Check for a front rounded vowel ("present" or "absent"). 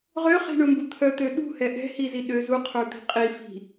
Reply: present